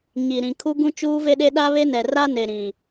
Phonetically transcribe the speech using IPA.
ɲ i˨ ɾ ĩ˨ kʰ u˦ ɡ ũ˦ t͡ʃ uː˦ v e˦ ɗ e˦ ɗ a˦ β e˦ n ɛ˨ r a˦ n e˨ ɾ ĩ˨

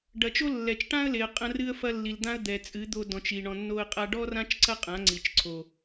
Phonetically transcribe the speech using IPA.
ɖ ɐ˨ t͡ʃ o˦ lː ɛ˨ t͡ʃ ʈ ã˦ ə̯ l e˨ ə̯ qʼ ɐ̃˧ r ɨ˦ ə̯ f ɐ˦ lː i˨ l d̪ ã˦ ə̯ d̪ ɛ˨ t͡sʼ ɨ˨˦ d̪ o˧ d ɔ̃˨ t͡ʃ i˨ ɳ ɔ̃˧ nː o˦ ə̯ qʼ a˧ ɖ ɔ˦ r ã˦ t͡ʃ ǀ ɐ˦ qʼ ã˨˦ ŋ͡ǀ i˨ t͡ʃ ǀʰ o˨

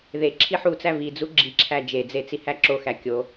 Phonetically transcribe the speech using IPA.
ð e ǁʰ i ħ u t͡s æ v i d͡z u ɡ͡ǁ i ǁʰ æ d͡ʒ e d͡z e t͡s i h æ ǁ o x æ kʲ o

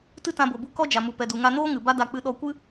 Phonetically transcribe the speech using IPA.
t ɨ˦ t ã˧ b o˨ b u˧ k ɔ˦ d͡ʒ a˨ m u˨ p ɛ˨ d u˨ ŋ a˧ n oː˦ ŋ ɨ˨ b a˦ d a˧ k͡p ɨ˧ ɗ ɔ˧ kʷ ɨ˦

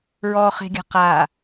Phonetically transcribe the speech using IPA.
ɹ ɔ χ e̤ ɡʲ a̤ q a

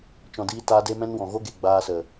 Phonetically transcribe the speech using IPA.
t͡ʃ ɔ̃˨ d iː˧ t aː˧ d e˦ m ɛ̃˦ n w ɔ̃˨ ɣ o˦ ɡ e˨ ɡ͡b aː˧ s ə˨

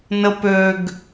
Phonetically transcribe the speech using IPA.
n ə p ø ɡ

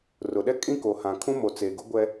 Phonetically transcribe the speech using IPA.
r ʊ˨ ɗ ɛ˦ kʼ ĩ˦ k o˨ h ã˨ kʰ ũ˦ m o˨ t͡s e˨ ɡ ʊ˦ ɡʷ ɛ˦

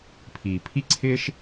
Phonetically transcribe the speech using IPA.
pʰ iː˨ pʰ i˦ ǀʰ ɪː˦ ʃ

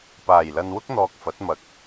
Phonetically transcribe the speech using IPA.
p aː˨˩ j l ɐ˨ n w ʊ˥ k̚ n̪ ɔː˨ k̚ f ɐ˨˥ t̚ m ɐ˧ k̚

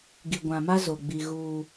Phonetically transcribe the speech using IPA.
ɡ i˨ ɡʷ ã˨ m a˦ z o˨ ɡ͡b i˨ ɣ uː˦

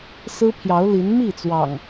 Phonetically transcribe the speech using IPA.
s ɹ̩˦ pʰ j ɑ˨˦ ʊ̯ l i˨˦ n m i˥˨ t͡s w ɑ̰˨˩ ŋ

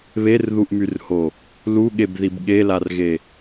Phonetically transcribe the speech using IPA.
β e r ð u ʔ m y r h o | l u ɠ e b ð i b ɠ e l a r ɣ e

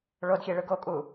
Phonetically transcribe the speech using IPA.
ɭ o d xʲ e ɭ ɯ ɡ o kʼ u

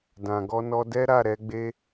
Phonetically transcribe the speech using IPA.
d ã˨ ɡ ɔ˧ n ɔ˧ d ɛ˦ ɾ a˦˨ ɾ ɛ˧ ɡ͡b e˦

